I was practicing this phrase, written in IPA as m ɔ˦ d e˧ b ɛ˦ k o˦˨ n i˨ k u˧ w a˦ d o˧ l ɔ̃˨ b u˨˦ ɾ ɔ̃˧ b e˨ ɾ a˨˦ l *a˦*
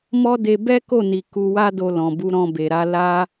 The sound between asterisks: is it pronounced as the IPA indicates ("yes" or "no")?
yes